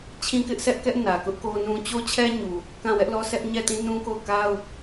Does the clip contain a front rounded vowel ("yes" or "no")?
no